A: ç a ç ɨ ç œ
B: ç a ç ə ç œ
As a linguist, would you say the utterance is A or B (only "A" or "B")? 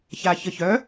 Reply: B